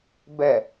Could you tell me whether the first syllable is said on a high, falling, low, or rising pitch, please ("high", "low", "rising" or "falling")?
low